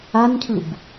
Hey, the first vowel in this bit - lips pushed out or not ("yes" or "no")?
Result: no